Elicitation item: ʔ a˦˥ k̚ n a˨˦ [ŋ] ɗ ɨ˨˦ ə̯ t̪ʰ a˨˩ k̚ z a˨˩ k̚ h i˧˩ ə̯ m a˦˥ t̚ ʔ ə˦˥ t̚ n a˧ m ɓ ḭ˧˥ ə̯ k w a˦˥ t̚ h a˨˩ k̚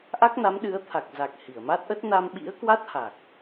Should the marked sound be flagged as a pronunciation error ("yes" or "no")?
yes